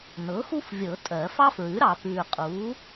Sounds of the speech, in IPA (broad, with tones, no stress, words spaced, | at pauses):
nɤ˩˥xu˥fvʲɤ˨˩˦ tʼɜ˨˩˦ fɑ˥fɹʉ˩˥ɾɑ˨ pʉː˨qʼuː˩˥